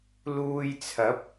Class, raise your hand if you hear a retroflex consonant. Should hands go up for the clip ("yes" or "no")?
no